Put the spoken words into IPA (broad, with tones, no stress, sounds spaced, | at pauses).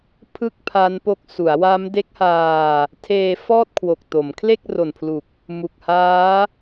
pʰ ɯ˥˩ k̚ pʰ a˦˥ n p o˦˥ k̚ s u˩˦ a̯ w a˦˥ m d e˦˥ k̚ h aː˧ | tʰ eː˧ f ɔː˥˩ t̚ kʰ w o˨˩ k̚ t o˩˦ m kʰ l e˥˩ k̚ r o˨˩ n pʰ l u˨˩ k̚ | m u˨˩ k̚ h aː˦˥